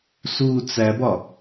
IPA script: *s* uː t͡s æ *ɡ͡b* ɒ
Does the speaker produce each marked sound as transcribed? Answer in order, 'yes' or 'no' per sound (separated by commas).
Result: yes, no